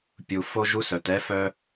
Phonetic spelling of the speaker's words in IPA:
pʲ u˨ f o˦ ʒ u˦ s œ˨ t ɛ˦ f œ˦

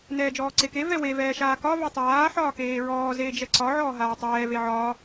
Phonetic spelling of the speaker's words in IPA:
n ɛː d͡ʒ ɔː ǀ e k e v ɛ w e v ɛː ʃ aː k ɒ v ɛ tˤ aː ħ ɒː k eː ɹ ɔː z eː d͡ʒ ɛ ǀ ɒ ʕ ɔː ɦ aː tˤ ɛː v e ʕ ɒː

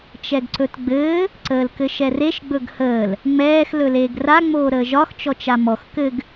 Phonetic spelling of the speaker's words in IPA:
t͡ʃ ɛ ɡ ǀ ɵ t ɡ͡b ɘː | ǀ əː l k ɘ ʃ ɛ r e ʃ ɡ͡b ɵ ɡ h əː l | ŋ͡m ɛː x l ɵ l eː ɡ r a ŋ͡m oː ɾ əː ʒ ɒ x t͡ʃ ɔ t͡ʃ a m ɔ x k ɘ ɡ

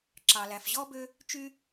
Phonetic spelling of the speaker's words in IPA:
ǁ ɑ˩ l æ˩ f ʑ ɔ˥ b ø˥ | t͡ʃ y˥

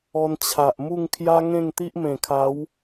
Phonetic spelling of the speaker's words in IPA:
ɔ˧ n t͡ɕʰ a˨ ʔ m u˥˧ ŋ kʰ j a˦ ŋ ẽ˥˧ ŋ t̪ i˦ ʔ m ẽ˨˩ kʰ a˨˦ w

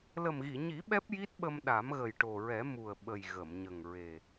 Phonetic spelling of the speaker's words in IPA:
l ə˨˩ m ɣ i˨˩˨ ɲ i˨˩˦ ɓ ɛ˦˥ p̚ j i˦˥ t̚ ɓ ə˧ m ɗ a˨˩˦ m ɣ ə˨˩ j ʈ o˨˩ ɹ ɛ˨˩˦ m u˨˩ ə̯ ɓ ə˨˩ j ɣ ə˨˩˨ m ɲ ə˨˩ ŋ ɹ e˨˩

